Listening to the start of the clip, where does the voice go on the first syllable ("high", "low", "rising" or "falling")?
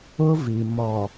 high